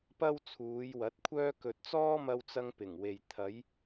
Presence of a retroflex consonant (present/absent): absent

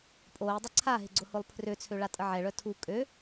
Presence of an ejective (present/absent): present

